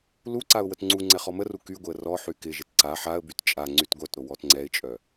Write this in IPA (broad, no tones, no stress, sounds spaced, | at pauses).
l u ǀ a ʊ̯ w ə t ŋ͡ǀ u ŋ͡ǀ ɛ χ ɔ m ə r u k y ɡʷ ɪ ə̯ r ɔ ħ y k ɪ ʒ ɪ t ǀ a ħ a ə̯ b y t t͡ʃʼ a ŋ͡ǀ y t ɡʷ œ t ɾ o w ɔ t ŋ͡ǀ ɛ ɪ̯ t͡ʃʼ œ